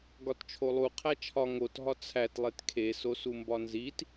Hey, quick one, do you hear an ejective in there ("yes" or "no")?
no